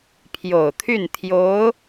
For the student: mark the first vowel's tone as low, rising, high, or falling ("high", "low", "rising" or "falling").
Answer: low